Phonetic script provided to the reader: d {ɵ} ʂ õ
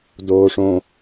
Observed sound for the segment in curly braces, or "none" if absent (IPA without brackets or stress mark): o